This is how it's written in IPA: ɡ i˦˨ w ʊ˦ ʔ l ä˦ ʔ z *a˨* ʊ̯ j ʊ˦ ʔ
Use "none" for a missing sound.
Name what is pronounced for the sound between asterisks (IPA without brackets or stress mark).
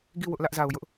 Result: a˨